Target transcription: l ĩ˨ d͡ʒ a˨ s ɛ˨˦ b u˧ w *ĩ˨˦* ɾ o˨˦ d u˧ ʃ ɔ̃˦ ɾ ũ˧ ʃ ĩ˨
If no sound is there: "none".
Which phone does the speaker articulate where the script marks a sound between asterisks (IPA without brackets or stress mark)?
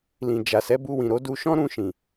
ĩ˨